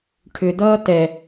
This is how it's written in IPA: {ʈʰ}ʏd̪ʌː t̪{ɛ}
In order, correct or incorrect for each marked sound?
correct, correct

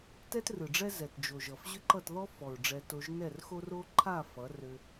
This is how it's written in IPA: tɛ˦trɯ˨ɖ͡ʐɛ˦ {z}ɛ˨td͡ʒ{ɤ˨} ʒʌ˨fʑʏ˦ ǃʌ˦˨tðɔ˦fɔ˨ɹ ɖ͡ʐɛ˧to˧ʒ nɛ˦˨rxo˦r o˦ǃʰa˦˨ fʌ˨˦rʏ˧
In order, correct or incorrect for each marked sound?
correct, incorrect

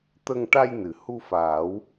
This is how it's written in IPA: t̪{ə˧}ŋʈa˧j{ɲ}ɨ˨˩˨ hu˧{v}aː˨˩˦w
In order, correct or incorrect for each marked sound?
correct, incorrect, incorrect

